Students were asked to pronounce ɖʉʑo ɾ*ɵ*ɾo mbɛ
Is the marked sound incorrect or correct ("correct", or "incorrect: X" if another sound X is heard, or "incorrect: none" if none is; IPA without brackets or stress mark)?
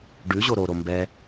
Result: incorrect: o